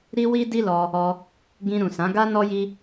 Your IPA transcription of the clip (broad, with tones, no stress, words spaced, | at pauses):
ɾi˦wi˦di˦lɔ˧ | ɔ˧ | ɡĩ˧ɾũ˨sã˨˦ ɡa˦nɔ˦ji˦